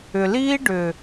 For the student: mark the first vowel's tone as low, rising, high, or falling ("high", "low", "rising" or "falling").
low